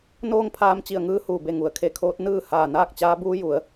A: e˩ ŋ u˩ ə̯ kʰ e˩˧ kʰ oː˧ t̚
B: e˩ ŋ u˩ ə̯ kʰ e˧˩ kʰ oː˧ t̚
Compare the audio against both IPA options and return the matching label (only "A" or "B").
B